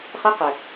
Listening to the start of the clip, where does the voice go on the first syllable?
high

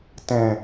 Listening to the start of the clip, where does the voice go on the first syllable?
low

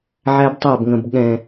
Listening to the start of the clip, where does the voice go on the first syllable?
high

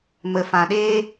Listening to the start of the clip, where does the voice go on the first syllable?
low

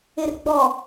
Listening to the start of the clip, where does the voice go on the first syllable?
low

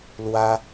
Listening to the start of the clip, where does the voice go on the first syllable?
high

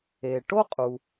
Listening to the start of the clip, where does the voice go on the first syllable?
low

